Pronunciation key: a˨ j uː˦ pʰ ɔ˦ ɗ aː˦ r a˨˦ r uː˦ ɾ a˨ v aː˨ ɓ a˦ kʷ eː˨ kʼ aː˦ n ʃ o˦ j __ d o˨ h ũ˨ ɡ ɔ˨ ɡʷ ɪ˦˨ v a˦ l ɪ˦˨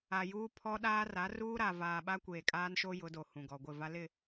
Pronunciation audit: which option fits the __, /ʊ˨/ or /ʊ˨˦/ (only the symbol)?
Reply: ʊ˨˦